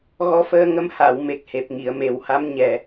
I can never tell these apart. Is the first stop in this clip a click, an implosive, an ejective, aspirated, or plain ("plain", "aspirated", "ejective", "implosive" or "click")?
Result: plain